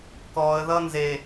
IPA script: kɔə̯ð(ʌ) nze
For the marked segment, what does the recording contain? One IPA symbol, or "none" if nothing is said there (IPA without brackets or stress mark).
ʌ